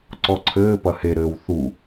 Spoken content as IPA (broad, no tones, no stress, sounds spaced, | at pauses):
ǀ ɔ ǀʰ ɘː p ɐ h e ɾ ɘː w θ u